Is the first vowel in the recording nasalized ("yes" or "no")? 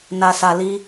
no